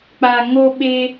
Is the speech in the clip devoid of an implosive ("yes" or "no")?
no